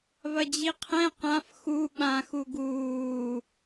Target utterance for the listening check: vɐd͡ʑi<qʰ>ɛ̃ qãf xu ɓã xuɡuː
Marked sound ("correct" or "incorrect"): correct